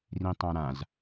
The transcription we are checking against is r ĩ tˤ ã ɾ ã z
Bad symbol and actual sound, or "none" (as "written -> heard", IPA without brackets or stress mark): none